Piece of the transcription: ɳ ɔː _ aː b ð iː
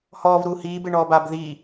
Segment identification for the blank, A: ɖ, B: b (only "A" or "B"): B